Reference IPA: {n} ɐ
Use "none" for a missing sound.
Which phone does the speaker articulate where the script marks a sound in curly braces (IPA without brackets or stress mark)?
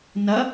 n